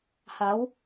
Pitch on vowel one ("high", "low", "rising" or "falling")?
rising